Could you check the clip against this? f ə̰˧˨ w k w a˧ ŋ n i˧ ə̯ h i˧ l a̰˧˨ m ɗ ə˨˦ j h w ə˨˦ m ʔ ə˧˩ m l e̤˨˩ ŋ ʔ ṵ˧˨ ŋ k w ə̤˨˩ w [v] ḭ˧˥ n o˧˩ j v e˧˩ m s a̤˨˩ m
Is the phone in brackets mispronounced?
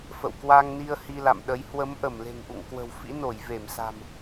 yes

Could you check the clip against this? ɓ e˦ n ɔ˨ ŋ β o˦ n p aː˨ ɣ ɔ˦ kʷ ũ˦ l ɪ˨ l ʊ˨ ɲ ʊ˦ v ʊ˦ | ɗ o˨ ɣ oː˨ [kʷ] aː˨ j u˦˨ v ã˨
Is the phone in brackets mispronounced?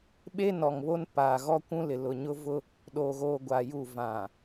yes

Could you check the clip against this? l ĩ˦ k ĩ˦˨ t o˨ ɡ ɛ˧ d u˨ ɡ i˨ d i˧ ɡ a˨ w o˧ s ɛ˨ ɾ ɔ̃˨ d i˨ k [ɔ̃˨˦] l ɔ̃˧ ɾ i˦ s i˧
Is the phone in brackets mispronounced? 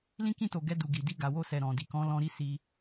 no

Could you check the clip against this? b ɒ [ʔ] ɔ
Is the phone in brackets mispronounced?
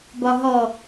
yes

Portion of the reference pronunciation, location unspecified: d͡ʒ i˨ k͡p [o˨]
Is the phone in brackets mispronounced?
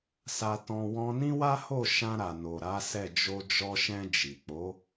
yes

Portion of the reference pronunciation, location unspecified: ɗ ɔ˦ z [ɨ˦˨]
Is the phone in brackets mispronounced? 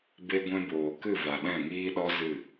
no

